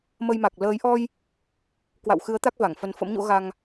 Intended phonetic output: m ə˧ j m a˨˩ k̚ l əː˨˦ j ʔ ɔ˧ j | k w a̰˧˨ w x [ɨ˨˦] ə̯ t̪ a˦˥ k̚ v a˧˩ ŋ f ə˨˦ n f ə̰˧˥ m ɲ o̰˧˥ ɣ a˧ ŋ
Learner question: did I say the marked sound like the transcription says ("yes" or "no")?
yes